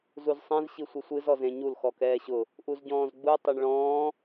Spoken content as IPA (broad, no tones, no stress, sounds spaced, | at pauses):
z u z sˤ ɛ̃ z ɕ i sʷ ɨ sʷ ɨ z ɔ z ẽ ɲ u l x ɔ k ɛː ɕ ʊ | ʔ u z ɟ ɔ̃ː z ɡ͡b u tˤ ʊ ɳ ɭ ɔ̃ː